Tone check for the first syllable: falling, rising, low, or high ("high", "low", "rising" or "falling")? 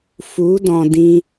rising